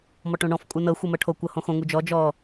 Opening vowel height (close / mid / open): mid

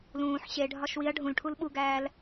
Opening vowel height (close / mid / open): close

